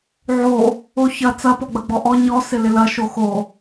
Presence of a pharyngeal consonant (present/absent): present